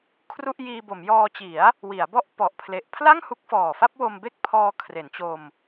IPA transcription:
kʰ r u˥˩ ʔ j iː˧ b o˩˦ m j ɔː˧ t͡ɕ i˩˦ a̯ | w i˩˦ a̯ b ɔ˥˩ ʔ p ɔ˨˩ ʔ pʰ l e˨˩ ʔ pʰ l a˥˩ ŋ h u˦˥ k̚ f ɔː˨˩ f a˥˩ p̚ w o˧ m b e˥˩ k̚ pʰ ɔː˧ kʰ r e˩˦ n t͡ɕ o˧ m

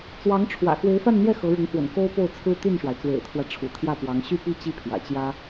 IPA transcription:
t͡s w ɑ˧˥ ŋ ʈ͡ʂʰ w ä̰˨˩ x w e˧˥ ɪ̯ f a˥˧ n n̪ j ɛ˥˩ x ɤ˧˥ ɻ ʊ˧˥ ŋ x w ə̰˨˩ n k o˥ ʊ̯ p o˥˩ ʊ̯ t͡sʰ ɹ̩˥ t̪ y˥˩ n ʂ w a˩ ɪ̯ t͡s w ḛ˨˩ ɪ̯ t̪ʰ w ä˦ ʈ͡ʂʰ ṵ˨˩ t̪ʰ j ä˥˩ p w ɑ˧˥ ŋ ɕ y˥˧ p i˥˧ t͡ɕ i˥˩ pʰ j ä̰˨˩ t͡ɕ j ä˥

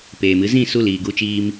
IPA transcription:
p eː˨ m ɨ˨˦ z ĩ˦˨ s u˦˨ l iː˨ ɡ u˧ t͡ʃ iː˧ m

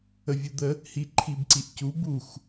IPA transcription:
ə vʲ u d̪ ə | h i ǃʰ i b ǀ i ʔ c u b u x

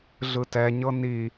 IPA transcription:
ɮ ɯ t ɛ ɲ ɤ n i

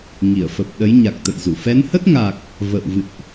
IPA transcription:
ŋ i˧˩ ə̯ f ə˨˩ p̚ ɗ ə˨˦ j ɲ a˨˩ k̚ t̪ ə̰˧˨ j z u˧˩ f ɛ˨˦ n h ə˦˥ t̚ ŋ a˨˩ k̚ | v ə̰˧˨ w v ɨ̰˧˨ ʔ

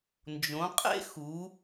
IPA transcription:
n d͡ʒ õ˩˧ qʼ ḛ˦ x u˩˧

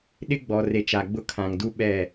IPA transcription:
ɗ ɪ˦ ɡ͡b ɔ˨ r e˨ t͡ʃ a˨ ɡ͡b ʊ˦ kʰ ã˨ ŋ d u˦ ɓ ɛ˦˨

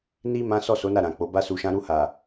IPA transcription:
n i˧ m ã˦ s ɔ˦˨ s o˨˦ n a˦˨ ɾ ã˨ k͡p o˨˦ b a˦ s u˧ ʃ ã˦ ɾ u˧ h a˨

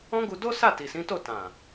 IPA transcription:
ɔ̃˦ ɡ u˧ d o˦ s a˦˨ t i˨ s ĩ˨˦ t o˦˨ t ã˨

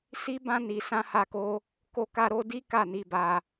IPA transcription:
s i˦ b ã˦ n i˧ s ã˦ h a˦ k o˦ | k o˦ k a˦ ɾ o˦ d i˦ k a˦˨ n i˧ b a˧

